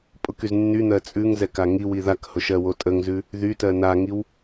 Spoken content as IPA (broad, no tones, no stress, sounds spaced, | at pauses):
pʼ ʊ k y z nː y n̪ ɜ t͡sʼ ʉ ŋ z ɛ k a ŋ i w i ð a k h ʊ ʃ ɜ w o tʼ ə ŋ z ʉ | ð y t ɜ n a ŋ i w